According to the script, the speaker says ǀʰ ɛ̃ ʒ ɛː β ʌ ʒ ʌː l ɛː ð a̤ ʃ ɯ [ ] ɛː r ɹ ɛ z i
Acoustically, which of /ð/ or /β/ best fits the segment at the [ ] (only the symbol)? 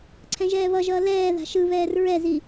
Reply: β